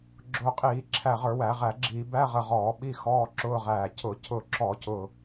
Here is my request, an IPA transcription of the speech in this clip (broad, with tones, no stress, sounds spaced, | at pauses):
ɡ͡ǁ ʊː˧˩ qʼ iː˧˩˧ ǁʰ æ˧˩ ʁ ə˞˧˩˧ w æ˧˩˧ ʁ æ˧˩˧ ɡ͡ǁ iː˧˩˧ b æ˧˥˧ ʁ ə˧˩ ʁ ɔː˧˩˧ ɓ i˧˥˧ x ɔː˧˥˧ ǁ ʊː˧˥˧ ʁ æː˧˩ cʰ ʊ˧˩˧ cʰ ʊ˧˩ ǁ ɔ˧˩˧ c ʊː˧˩